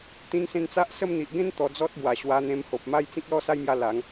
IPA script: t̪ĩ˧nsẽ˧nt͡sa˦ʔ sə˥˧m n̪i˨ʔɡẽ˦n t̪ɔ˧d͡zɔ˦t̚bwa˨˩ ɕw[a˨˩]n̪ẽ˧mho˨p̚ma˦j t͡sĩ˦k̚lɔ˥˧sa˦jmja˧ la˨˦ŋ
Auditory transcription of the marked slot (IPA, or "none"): a˧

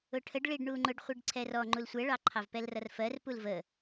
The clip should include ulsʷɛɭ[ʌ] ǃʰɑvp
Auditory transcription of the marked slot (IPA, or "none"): ɑ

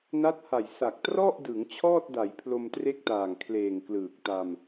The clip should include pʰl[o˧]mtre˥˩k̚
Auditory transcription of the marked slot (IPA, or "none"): o˧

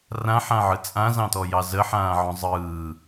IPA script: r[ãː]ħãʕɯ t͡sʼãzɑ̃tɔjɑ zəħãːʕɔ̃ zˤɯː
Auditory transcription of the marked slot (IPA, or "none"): ã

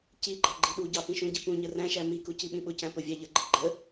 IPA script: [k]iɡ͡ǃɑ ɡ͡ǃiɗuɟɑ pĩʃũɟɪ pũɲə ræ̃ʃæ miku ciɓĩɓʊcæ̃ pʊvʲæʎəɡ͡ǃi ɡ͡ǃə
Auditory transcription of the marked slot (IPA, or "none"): c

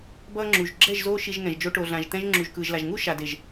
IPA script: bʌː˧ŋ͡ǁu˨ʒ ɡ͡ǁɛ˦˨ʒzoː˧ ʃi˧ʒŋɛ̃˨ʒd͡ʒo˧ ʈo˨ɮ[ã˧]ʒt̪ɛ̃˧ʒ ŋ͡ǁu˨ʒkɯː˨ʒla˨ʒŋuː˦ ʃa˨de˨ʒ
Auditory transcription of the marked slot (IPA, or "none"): ã˨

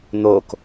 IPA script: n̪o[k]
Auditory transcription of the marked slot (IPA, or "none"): k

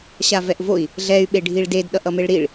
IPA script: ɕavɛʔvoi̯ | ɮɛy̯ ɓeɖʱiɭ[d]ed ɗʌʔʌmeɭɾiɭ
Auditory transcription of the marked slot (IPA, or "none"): d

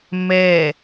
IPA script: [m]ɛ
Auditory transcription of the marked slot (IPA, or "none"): m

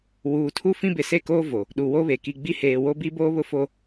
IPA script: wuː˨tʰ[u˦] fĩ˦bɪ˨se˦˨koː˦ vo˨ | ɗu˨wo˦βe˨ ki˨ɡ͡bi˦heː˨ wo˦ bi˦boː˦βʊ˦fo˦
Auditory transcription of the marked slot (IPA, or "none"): u˦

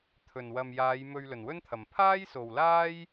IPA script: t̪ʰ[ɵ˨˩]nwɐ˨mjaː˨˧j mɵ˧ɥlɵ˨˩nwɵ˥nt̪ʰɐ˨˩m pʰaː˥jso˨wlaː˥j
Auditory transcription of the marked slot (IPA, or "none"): ɵ˨˩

